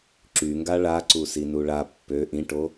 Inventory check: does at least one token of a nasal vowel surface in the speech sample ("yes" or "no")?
yes